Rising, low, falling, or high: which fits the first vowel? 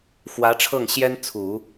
rising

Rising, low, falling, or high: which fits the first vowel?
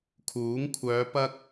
rising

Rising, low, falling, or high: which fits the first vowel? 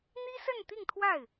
high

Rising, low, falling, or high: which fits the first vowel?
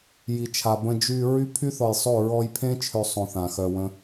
low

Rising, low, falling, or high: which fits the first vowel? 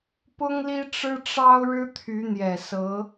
high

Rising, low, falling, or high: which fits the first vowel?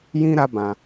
high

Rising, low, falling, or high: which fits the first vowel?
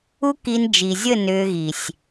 high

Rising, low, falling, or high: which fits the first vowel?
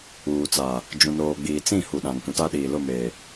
low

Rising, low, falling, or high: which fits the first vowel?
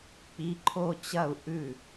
rising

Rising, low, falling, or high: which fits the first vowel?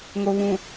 low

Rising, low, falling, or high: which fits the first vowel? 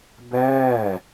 falling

